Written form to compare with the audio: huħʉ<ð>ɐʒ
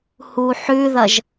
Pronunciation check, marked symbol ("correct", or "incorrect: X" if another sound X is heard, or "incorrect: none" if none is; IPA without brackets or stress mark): correct